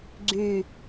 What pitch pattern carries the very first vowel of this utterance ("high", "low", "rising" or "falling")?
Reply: falling